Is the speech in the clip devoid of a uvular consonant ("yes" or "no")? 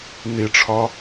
yes